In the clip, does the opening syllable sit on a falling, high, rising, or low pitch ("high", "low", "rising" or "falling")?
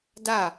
falling